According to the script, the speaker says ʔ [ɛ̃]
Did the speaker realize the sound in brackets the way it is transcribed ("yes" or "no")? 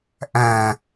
no